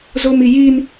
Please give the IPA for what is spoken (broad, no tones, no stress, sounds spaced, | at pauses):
z o m i j i n